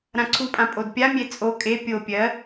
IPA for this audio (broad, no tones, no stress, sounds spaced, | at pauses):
ɾ ã ǀʰ u pʼ ã pʼ o d pʲ a mʲ e t͡sʼ o kʼ e pʲ o pʲ ɜ